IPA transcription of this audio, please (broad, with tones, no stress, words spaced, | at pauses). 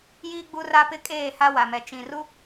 jiː˦ɡ͡bu˦ra˦pɪ˦˨ kʼeː˦˨ha˦wa˨mɛ˨ t͡ʃĩ˨ru˦